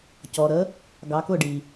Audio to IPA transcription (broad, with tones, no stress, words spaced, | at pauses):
cɔ˩ɾə˩˧ | ɡɑ˩˧kʊ˧˩ɖi˩